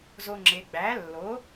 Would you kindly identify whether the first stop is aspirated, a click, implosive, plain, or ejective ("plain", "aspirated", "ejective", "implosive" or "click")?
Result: click